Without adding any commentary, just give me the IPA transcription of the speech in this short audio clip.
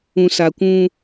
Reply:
ũ˨ s a˨ kʷ ũ˦

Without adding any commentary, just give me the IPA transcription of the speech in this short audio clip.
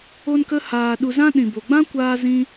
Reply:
o˦ n k ə˦ h aː˧ ɗ u˧ z ã˦ ɗ ĩ˨ b o˨ ɡ͡b ã˦ kʷ aː˦ z ĩ˦

